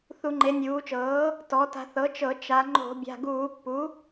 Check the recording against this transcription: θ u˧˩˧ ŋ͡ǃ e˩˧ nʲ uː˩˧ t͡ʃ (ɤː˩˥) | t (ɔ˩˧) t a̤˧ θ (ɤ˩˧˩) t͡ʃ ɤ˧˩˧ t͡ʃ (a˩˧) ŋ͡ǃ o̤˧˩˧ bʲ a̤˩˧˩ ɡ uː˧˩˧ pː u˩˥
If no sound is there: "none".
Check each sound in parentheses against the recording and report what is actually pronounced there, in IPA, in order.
ɤː˩˥, ɔ˩˧, ɤ˩˥, a˩˧

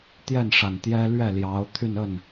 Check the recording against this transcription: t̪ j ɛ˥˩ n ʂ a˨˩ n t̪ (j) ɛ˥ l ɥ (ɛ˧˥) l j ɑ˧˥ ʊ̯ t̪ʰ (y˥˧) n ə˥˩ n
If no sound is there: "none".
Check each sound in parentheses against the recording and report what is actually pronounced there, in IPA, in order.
j, ɛ˥˩, y˥˧

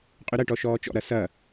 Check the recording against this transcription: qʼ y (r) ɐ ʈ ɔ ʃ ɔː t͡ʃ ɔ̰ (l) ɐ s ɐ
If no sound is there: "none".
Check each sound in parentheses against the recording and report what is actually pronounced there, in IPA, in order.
ɾ, ɾ

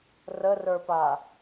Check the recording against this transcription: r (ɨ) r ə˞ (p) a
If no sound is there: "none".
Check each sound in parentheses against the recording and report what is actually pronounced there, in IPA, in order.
ə, p

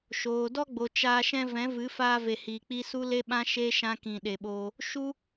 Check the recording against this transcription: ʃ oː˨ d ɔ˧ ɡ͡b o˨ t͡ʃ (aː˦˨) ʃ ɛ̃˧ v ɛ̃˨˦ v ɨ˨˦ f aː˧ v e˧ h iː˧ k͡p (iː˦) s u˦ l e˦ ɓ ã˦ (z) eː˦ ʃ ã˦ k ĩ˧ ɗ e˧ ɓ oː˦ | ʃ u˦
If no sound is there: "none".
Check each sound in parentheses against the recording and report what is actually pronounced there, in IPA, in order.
aː˧, i˦, ʃ

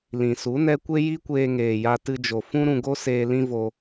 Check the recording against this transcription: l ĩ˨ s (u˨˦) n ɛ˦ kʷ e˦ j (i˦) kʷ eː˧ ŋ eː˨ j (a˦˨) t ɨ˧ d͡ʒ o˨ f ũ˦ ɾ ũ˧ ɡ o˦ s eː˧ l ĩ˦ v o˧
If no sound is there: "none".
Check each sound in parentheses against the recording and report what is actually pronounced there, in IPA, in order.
u˨˦, i˦, a˧

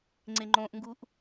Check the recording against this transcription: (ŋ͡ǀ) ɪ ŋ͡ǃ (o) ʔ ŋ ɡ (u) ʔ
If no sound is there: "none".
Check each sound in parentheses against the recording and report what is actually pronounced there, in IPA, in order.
ŋ͡ǀ, õ, u

